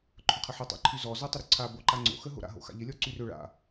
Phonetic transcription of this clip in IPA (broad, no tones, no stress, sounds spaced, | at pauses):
ǃʰ ʊ qʰ ɐ ħ ʊ tˤ a̰ ǃʰ y z ɔ z ɔ tˤ ʊ ɾ ʏ ǀʰ a b o ǃ a ŋ͡ǀ o̰ x ə ɦ o̰ ɾ a̰ ɦ o̰ x a̰ ʎ ɪ lʲ ɔ ǀ y r ʏ ɭ a̰